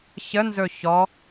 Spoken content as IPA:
çənzɵ çɔ

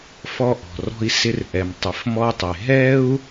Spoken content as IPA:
fɔ˧ʔɔ̤˩rɔ̤˧i̯sɪ˧r ʔɛ˩mtˤɪ˩fmɔ˧tˤe˩ ɦɛ˥u̯

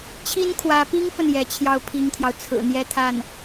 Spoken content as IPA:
t͡ɕʰi˥nkʰwä˧˥pi˥ŋfə˨n jɛ˧˥t͡ɕʰjɑ˥˩ʊ̯pʰi˥ŋt̪ʰjɑ˨ʊ̯ t͡sʰɹ̩˨˩n̪jɛ˥t̪ʰa˥˩n

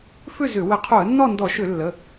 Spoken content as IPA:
fʏ˥˨zʏ˧˩˧ wə˧˩˧qʰo˧˩˧ə̯ nːɔ˥˨ndɔ˧˩˧ʃʏ˧˩˧lːə˩˧˩

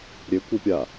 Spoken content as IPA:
ɾʲekʷepʲa

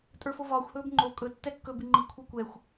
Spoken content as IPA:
tʼə˞fovɒːxʷ hɵːbŋ͡ǃo kʼɵ tːɛkːɵ biŋ͡ǃi kʷʰakʷɛxʷ

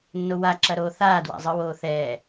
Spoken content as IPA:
nːowaǁɐɾoː θaːdwa̰zˤɯwoː θɛ

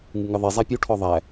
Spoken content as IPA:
ŋɨŋɨðˤi zˤapʲu ʈʰɔðˤæ

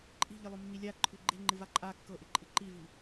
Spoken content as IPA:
ǃʼi̤ ʎɨlˠomːilʲa ǃʰʉɡ͡ǃe̤ŋ͡ǃɨ vaǃʼa kːɤ ʔɪǃʼɨǃivi

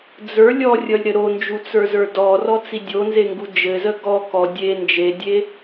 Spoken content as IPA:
d͡zə˞ lʲɔrʲʌlʲɾɘ ɾond͡ʒut͡sə˞zə˞ dɔrɔt͡si dʲonzeŋɡu d͡ʒɘzə ɡɔ kɔ dʲe nd͡ʒedʲe

